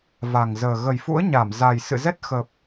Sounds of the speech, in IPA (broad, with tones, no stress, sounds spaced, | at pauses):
v a˨˩ ŋ z əː˨˩ ɣ ə˨˩ j f ṵ˧˥ ə̯ ɲ a˧˩ m z a˨˩ j s ɨ̰˧˨ z ɛ˦˥ t̚ x ə˨˩ p̚